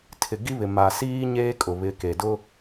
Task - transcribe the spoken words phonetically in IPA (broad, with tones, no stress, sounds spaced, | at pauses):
tʰ ɪ˨ ɡ i˦ β ɪ˨ m a˨ s iː˦ ɲ eː˦ kʼ ʊ˨ β ɪ˨˦ k e˨ d ʊ˦